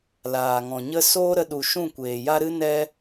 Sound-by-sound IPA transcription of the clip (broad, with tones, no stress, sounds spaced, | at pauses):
l aː˨ ŋ ɔ̃˨ ɲ ə˦ s oː˦ ɾ ə˧ ɗ u˨ ʃ ũ˦˨ kʷ eː˨ j a˦ ɾ ɨ˦ n ɛ˦